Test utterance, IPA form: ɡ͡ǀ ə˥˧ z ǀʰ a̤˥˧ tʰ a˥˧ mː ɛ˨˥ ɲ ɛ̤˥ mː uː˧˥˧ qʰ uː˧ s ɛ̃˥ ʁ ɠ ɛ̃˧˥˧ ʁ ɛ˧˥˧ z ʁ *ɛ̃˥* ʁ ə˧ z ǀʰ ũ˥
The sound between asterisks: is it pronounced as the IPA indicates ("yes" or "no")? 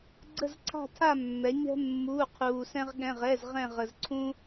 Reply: no